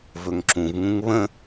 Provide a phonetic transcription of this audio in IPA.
v ɵ ŋ ǁ ũ v ŋ ũ ŋ β ə̃

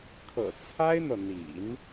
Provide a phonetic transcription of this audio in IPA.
kʰ ɤ̰˨˩ t͡sʰ a˥ ɪ̯ n̪ ɤ˨ n̪ ḭ˨˩˦ n

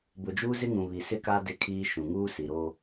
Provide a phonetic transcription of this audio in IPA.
b ʊ˨ d͡ʒ uː˦ z ɪ˦ ŋ ũ˨ β i˨ s ɪ˦ k a˦ d ɪ˦ kʰ iː˦ ʃ ũ˨ ŋ uː˦ s i˨ ɾ o˦

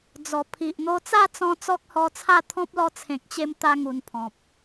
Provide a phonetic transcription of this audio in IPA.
d͡z ɔ˨˩ pʰ i˨ ʔ n̪ o˧ t͡s a˥˧ t͡s ɔ̃˦ t͡s ɔ˦ k̚ h ɔ˧ t͡sʰ a˥˧ t̪ʰ ɔ̃˦ p̚ l ɔ˧ t͡sʰ ẽ˨ k̚ t͡ɕ e˧ m t̪ a˧ ŋ u˧ n pʰ ɔ̃˨ p̚

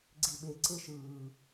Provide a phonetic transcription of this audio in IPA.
ɡ͡ǀ i ɓ e ǀ e ʃ ɯː

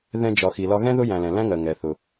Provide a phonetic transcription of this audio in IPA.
ð ɛ̃˨ d͡ʒ ɒ˩ x i˩ l ɒ˨ ɣ ɛ̃˥ ð ʊ˦ j æ̃˨ l ɛ̃˩ l æ̃˦ ŋ ɜ˩ ŋ ɛ˩ θ ʊ˩

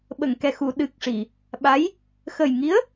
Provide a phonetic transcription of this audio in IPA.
ɓ ə˨˩˨ ŋ k ɛ˨˩ x u˨˩˨ ɗ ɨ˨˩ k̚ ʂ i˨˩˨ | ɓ a˧˥ j | x ə˨˩ j ŋ i˧˥ ə̯

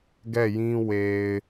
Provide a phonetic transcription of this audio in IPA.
ɡ ɛ˦˨ j ĩ˦ w e˨ ɪ̯

